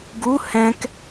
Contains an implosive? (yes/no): no